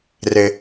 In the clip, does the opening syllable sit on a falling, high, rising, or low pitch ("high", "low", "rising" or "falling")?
low